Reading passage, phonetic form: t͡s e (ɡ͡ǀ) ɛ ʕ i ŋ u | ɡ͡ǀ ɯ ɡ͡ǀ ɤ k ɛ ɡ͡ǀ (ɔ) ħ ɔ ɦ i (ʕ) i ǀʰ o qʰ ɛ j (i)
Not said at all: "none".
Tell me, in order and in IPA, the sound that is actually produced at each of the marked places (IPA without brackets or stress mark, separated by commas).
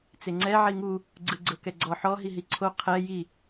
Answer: ŋ͡ǀ, ɔ, ɦ, i